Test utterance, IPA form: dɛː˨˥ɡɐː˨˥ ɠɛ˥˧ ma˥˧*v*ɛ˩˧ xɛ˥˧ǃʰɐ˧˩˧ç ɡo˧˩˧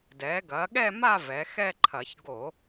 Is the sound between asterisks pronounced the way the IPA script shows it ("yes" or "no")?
yes